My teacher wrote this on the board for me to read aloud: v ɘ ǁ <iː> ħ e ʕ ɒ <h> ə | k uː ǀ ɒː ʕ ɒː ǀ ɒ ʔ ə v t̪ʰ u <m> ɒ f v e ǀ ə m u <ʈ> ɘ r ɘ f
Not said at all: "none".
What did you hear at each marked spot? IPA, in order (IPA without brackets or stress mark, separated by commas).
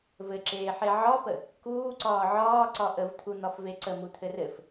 eː, p, n̪, t̪ʰ